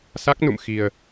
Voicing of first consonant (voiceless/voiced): voiceless